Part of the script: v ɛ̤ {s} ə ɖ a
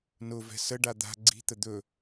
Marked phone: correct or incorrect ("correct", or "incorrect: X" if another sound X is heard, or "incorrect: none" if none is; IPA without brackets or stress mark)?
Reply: correct